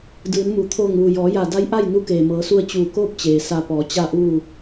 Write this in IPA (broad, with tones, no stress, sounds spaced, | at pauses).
d ɯː˩˧ n m u˩ t̪ʰ oː˧˩ ŋ ʋ u˩ j ɔː˩˧ j a˧˩ d a˧˥ j ʔ a˥˨ j n u˧˥ k eː˩ m ɤː˩˧ s u˧ ə̯ t͡ɕ uː˧˩ k oː˥˨ p̚ t͡ɕ eː˩ s a˧ p ɔː˩˧ t͡ɕ a˥˨ ʔ uː˥˨